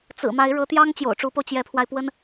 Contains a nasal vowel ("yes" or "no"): no